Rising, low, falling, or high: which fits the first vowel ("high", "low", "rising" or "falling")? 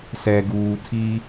low